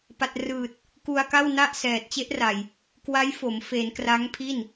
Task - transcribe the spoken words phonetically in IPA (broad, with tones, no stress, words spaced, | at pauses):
pa˨˩t̚rɯː˨˩t̚ | ku˧a̯ka˥˩wna˥˩ʔsɛː˨˩t̚ t͡ɕe˦˥ʔra˨˩j | kwa˦˥jfo˩˦mfe˩˦n kra˦˥ŋpʰi˥˩n